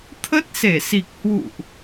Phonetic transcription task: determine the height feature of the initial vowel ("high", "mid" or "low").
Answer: mid